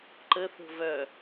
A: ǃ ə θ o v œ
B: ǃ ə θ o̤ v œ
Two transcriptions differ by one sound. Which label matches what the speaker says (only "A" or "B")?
B